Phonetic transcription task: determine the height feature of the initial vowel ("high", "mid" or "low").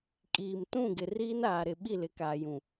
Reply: high